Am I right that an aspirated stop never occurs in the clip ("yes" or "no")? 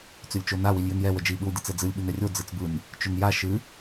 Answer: yes